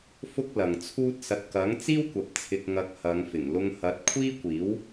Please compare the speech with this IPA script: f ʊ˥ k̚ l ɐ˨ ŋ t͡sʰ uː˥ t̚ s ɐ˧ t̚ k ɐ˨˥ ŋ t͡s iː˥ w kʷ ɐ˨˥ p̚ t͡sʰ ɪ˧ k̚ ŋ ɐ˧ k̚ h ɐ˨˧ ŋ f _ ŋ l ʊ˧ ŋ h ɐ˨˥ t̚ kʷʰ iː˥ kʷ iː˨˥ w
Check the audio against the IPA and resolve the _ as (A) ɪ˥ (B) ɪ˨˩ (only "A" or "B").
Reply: B